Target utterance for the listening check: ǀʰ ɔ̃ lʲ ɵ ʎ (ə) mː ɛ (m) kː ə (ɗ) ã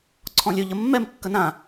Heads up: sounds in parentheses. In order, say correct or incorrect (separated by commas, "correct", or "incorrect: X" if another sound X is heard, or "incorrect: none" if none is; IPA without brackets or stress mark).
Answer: correct, correct, incorrect: n